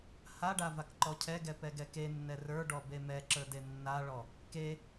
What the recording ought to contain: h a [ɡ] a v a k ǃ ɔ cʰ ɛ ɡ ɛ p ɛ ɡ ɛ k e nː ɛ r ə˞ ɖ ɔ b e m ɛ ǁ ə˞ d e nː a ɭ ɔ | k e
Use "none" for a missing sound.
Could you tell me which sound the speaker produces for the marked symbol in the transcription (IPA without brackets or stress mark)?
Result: ɖ